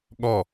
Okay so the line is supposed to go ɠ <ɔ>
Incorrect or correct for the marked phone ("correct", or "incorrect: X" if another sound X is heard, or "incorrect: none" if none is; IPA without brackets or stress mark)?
correct